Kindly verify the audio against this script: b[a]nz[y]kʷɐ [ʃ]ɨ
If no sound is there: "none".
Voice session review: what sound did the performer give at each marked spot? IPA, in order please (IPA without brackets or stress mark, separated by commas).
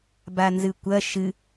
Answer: a, ɨ, ʃ